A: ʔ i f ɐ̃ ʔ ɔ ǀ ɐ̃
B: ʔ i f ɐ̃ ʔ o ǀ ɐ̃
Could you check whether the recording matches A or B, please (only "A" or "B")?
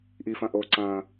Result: B